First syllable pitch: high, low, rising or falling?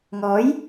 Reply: rising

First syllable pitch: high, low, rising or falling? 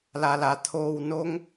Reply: low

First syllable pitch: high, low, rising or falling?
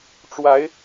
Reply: rising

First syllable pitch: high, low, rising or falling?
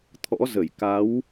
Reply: rising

